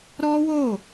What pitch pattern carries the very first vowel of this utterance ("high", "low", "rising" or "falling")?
high